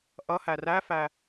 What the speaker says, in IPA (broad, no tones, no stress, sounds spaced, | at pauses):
ʔ ʌ h æ r æ f æ